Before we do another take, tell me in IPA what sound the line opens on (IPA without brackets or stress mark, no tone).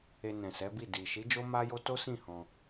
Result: e